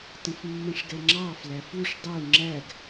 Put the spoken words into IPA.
tə̃fmːə̃ʂɡɛŋ͡ǁɑ flæfuʂ dˤu ŋ͡ǁæɡ

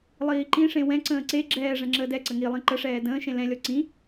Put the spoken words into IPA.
lˠiːǃĩʂẽ wɛ̃ǀə̃ː ǀe ɡ͡ǁɛːʐɛ̃ ŋ͡ǁəːdɛǀə ŋilˠĩ ǃəʂɛː də̃ːʃẽ lɛ̃lʲɔ ǀĩ

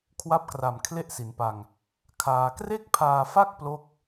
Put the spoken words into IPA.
kʰwa˦˥p̚kra˨˩m kʰle˥˩ʔsi˩˦npa˧ŋ | kʰaː˧ kre˥˩k̚pʰaː˧fa˥˩k̚ plo˥˩k̚

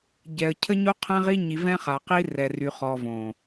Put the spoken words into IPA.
ɟɛ˨ə̯ cʰə˦ɲo˦ qʰɛ̃˦ʁi˦ɲi˨ vɛ̃˦χa˨qi˦ rɛ˨ry˨χɔ˨ võ˨

